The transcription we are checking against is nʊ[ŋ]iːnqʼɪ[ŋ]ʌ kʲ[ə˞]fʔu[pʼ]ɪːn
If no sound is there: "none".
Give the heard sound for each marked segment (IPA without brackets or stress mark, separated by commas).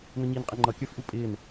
ɲ, ŋ͡ǃ, ə˞, pʼ